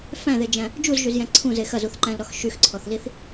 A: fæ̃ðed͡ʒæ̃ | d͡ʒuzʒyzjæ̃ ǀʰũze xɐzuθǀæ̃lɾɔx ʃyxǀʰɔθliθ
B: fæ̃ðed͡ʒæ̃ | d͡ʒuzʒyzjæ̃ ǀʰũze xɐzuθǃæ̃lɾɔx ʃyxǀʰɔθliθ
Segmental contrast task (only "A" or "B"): B